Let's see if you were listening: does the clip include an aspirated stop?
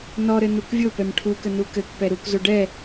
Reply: yes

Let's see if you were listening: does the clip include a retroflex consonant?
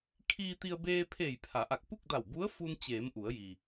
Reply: no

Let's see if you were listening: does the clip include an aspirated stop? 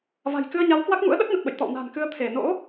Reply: yes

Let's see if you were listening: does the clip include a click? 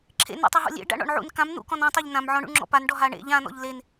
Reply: yes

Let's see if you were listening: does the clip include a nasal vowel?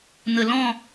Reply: yes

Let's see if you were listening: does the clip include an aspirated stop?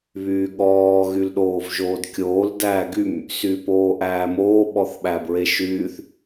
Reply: no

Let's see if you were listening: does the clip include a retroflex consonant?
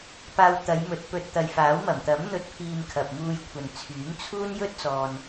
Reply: no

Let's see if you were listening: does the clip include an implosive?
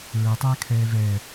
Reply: no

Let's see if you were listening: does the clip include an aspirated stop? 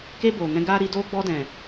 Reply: no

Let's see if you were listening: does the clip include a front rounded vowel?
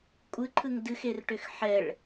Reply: yes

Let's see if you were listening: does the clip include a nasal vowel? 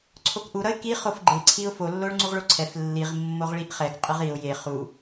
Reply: no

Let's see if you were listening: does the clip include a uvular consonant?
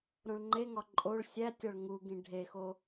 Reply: no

